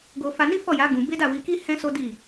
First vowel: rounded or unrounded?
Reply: rounded